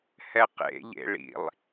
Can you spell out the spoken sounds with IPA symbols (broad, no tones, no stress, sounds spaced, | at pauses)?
h ɛ q ḛ ʎ ḛ ɭ ḭ lˠ